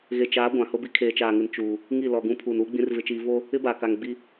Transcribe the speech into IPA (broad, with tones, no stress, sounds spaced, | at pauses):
ɣ e˨ t͡ʃ aː˨˦ ɡʷ ã˨ h ʊ˦ b i˦ kʰ eː˨ t͡ʃ aː˨ ŋ ɪ˨ n t͡ʃ uː˨ | ŋ i˦˨ l ɔ˨ ɡ ũ˦ pʰ uː˨ n uː˦ ɡ͡b ĩ˦ r v ɪ˦ t͡ʃ iː˦ v o˦ | ɪ˦ b aː˨ k a˨ ŋ ɡ͡b i˦